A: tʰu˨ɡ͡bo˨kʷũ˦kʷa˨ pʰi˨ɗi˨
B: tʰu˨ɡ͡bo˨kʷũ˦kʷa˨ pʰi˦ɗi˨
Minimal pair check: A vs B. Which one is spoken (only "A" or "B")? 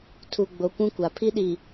B